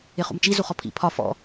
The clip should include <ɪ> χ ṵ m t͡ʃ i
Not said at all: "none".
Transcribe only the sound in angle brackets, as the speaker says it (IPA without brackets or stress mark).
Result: ɪ